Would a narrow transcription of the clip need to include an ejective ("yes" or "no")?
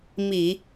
no